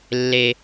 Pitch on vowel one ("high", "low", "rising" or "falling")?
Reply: high